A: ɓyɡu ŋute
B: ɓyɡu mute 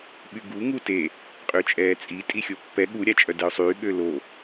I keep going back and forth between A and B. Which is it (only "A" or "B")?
A